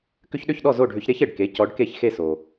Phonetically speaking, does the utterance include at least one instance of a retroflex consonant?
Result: yes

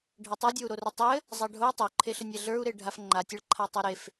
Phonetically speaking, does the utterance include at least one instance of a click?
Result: yes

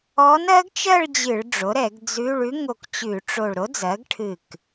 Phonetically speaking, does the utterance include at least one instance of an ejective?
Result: no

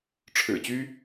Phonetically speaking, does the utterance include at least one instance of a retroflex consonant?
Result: yes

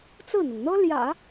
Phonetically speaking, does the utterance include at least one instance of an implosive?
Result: no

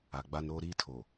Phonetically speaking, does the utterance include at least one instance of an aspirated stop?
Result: yes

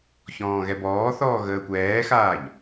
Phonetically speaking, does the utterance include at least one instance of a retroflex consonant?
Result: no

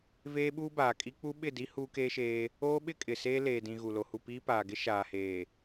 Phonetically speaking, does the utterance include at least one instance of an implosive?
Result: yes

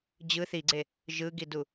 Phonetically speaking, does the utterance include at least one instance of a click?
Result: yes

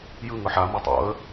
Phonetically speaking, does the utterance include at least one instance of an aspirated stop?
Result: no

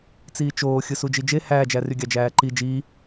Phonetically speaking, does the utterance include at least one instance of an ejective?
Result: no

